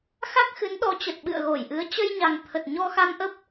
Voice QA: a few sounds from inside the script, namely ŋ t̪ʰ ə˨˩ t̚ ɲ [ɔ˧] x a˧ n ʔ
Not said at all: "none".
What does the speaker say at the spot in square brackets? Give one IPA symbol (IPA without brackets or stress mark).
ɔ˧